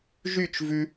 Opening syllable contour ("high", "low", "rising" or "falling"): falling